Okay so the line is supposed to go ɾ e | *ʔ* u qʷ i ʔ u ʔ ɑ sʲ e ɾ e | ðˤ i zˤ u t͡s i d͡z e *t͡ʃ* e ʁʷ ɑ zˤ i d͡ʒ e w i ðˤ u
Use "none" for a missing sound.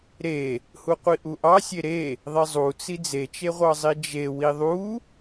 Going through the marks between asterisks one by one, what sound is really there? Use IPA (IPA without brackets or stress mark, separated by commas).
h, t͡ʃ